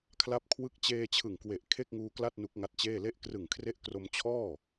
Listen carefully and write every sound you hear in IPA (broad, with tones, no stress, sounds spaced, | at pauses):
kʰ l a˥˩ p̚ kʰ w ɯ˥˩ k̚ t͡ɕ eː˧ t͡ɕʰ ɯ˨˩ ŋ k w e˨˩ ʔ kʰ e˥˩ k̚ ŋ uː˧ k l a˥˩ t̚ n u˦˥ k̚ ŋ a˦˥ t̚ t͡ɕ eː˥˩ l e˦˥ ʔ k r ɯ˨˩ ŋ kʰ r e˦˥ ʔ k r o˧ m t͡ɕʰ ɔː˥˩